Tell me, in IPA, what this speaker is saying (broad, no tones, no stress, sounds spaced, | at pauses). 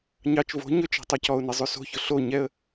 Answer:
ɲ ɑ t͡ʃ v o̤ ɲ ɵ t͡ʃ ɛ̤ tˤ œ c ɔ ʊ̯ n e zˤ ʉ s o̤ ç ɵ ɬ o ɲ ɛ ə̯